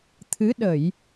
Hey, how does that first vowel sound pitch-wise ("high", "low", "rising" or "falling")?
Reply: rising